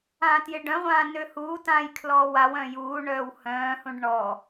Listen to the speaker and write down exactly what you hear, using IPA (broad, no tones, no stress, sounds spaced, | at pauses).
ãː t j ɪ ɖ œ̃ ʁʷ ãː n ø h uː t ãː j kʰ l ɔː w a w œ̃ j uː ɳ œː w h œ̃ː h ũ ɖ ɳ ɔ